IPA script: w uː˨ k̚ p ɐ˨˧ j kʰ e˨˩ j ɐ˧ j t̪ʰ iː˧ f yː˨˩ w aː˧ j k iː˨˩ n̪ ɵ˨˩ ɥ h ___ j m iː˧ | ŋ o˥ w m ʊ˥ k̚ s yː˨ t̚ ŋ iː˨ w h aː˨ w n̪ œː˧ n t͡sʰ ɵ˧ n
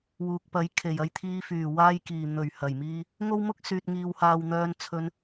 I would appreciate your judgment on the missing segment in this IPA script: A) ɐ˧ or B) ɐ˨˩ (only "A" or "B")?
B